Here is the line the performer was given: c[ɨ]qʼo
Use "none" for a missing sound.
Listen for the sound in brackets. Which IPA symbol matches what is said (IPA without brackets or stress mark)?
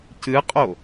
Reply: ɨ